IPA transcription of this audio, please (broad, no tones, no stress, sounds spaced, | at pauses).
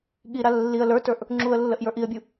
ɠ i ɾ a lː i ə̯ l ə˞ t ə˞ ʔ | ŋ͡ǁ u ə̯ lː ə ʔ j ə˞ ʔ i ə̯ bʲ u